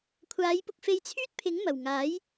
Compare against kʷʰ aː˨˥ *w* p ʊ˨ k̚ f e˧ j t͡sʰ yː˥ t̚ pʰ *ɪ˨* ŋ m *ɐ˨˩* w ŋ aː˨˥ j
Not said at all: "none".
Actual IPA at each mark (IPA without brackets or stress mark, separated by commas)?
j, ɪ˨˥, ɐ˨˩